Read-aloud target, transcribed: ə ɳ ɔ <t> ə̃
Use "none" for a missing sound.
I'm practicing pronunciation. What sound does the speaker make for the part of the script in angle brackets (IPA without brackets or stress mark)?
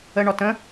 t